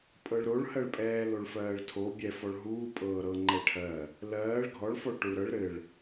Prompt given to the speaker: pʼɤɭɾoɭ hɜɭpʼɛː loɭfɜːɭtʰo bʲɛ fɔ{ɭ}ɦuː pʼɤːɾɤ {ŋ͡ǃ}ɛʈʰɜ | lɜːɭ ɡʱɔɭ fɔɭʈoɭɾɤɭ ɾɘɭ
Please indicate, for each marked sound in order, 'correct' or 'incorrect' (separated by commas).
correct, correct